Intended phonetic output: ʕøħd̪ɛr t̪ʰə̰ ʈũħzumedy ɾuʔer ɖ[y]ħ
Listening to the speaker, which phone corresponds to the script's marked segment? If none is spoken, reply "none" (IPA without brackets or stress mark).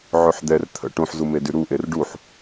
u